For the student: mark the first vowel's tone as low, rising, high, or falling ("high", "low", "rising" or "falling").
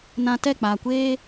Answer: low